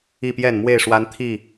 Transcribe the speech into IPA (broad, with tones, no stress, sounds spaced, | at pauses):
i˥˨ p j ɛ˥˨ n m w e˥˨ ɪ̯ ʂ w a˦ n t̪ʰ i˥˨